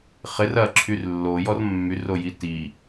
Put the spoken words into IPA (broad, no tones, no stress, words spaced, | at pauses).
χɪr ɐǁʰyr lːojɔr mːyroji ti